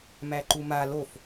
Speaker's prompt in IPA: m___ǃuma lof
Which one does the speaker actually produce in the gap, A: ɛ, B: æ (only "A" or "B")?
B